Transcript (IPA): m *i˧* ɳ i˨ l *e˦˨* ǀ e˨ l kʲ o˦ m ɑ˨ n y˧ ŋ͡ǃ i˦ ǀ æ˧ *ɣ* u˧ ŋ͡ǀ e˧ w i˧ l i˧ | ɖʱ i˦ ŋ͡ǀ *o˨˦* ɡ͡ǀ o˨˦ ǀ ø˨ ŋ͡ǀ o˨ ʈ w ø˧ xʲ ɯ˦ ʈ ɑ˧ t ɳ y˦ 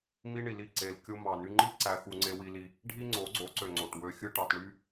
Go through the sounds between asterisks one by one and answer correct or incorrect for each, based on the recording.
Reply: correct, incorrect, incorrect, correct

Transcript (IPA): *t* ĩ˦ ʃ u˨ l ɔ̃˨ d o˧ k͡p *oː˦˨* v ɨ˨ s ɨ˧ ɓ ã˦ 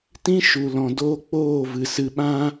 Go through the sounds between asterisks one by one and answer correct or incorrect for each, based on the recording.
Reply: correct, correct

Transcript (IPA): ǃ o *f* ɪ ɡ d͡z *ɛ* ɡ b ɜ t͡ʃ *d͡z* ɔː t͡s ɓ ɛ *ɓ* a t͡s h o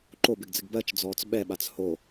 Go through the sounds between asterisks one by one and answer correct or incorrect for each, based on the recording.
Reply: incorrect, incorrect, correct, correct

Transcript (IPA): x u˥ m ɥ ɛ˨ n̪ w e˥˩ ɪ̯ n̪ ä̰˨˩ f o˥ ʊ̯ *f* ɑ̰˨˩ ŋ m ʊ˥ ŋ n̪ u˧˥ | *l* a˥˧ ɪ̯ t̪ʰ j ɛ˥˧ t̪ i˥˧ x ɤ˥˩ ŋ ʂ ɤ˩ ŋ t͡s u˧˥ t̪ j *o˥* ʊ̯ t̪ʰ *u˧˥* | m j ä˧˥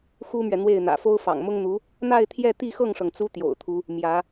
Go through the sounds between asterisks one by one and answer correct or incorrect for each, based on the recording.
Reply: correct, incorrect, incorrect, correct

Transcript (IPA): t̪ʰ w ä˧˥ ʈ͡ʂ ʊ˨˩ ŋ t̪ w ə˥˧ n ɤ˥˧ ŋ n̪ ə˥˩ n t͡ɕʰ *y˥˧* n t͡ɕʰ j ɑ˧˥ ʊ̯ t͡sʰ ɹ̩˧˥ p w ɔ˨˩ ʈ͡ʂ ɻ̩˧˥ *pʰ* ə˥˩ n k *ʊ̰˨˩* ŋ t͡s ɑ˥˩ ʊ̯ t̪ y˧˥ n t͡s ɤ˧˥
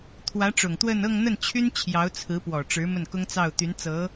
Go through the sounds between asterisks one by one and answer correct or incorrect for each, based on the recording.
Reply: incorrect, incorrect, incorrect

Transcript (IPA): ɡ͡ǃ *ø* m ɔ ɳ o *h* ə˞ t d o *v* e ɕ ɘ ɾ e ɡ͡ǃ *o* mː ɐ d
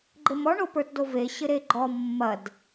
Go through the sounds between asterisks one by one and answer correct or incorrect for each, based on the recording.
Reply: incorrect, incorrect, correct, incorrect

